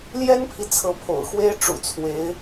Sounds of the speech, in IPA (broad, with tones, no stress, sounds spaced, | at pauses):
l j ɛ˥ n pʰ i˨ t͡sʰ ɤ˧˥ pʰ o̰˨˩ ʊ̯ x w e˥ ɪ̯ ʈ͡ʂ ṵ˨˩ t͡sʰ w e˧˥ ɪ̯